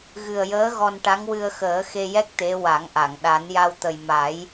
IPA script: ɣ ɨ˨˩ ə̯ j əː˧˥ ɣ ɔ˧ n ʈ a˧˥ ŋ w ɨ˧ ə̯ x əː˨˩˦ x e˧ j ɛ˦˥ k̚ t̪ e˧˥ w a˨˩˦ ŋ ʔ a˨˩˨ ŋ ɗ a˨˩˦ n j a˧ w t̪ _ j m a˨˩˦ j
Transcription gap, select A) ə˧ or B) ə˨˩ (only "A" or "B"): B